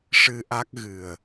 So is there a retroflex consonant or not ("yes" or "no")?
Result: yes